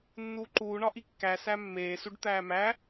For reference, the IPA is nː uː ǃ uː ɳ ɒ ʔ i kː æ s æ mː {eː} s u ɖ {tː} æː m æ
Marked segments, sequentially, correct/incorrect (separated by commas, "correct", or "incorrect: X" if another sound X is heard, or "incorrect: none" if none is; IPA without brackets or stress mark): correct, incorrect: t̪